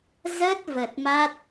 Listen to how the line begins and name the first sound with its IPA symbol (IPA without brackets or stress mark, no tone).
z